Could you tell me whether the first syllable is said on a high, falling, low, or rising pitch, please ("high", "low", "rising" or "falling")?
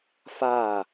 falling